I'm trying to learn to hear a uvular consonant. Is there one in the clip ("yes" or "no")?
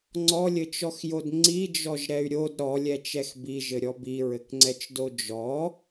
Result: no